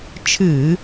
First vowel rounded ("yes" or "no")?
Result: no